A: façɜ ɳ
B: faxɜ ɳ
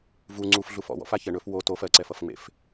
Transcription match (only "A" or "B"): A